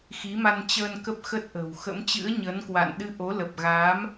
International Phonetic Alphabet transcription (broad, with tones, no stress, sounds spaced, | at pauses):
x i˨˦ m a˧ n t͡ɕ əː˧ n k ə˦˥ p̚ x ə˦˥ t̚ ʔ ə̤˨˩ w x ə̰˧˥ m t͡ɕ ɨ̰˧˥ ə̯ ɲ əː˨˦ n k w a̰˧˨ n ɗ ɨ˧ ʔ o˨˦ l ə˨˩ p̚ ɣ a˨˦ m